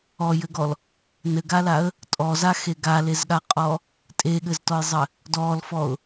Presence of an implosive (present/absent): present